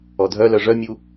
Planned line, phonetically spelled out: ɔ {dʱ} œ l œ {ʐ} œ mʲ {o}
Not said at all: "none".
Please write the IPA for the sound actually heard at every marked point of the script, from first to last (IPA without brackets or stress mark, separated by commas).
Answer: dʱ, ʐ, u